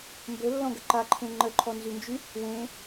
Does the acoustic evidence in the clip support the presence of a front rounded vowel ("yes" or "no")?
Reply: yes